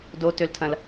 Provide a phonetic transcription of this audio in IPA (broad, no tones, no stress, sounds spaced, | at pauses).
d o t ø l tʰ ɐ̃ l